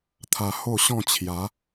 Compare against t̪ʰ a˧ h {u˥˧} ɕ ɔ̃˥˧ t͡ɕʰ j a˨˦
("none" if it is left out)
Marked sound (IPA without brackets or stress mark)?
o˥˧